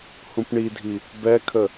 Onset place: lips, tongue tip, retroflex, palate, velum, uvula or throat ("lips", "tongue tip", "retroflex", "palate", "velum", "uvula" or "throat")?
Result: throat